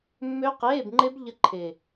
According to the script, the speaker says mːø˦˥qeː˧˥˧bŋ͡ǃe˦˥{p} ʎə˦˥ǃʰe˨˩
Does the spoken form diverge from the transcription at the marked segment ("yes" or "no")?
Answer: yes